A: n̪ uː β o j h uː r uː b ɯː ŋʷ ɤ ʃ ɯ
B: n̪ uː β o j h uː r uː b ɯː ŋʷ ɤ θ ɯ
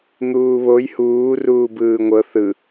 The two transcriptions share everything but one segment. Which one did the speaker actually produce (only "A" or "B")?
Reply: B